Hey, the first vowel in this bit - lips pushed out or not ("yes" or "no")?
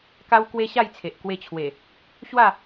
no